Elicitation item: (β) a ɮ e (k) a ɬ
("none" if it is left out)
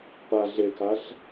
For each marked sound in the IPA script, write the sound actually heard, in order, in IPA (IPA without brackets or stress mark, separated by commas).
p, k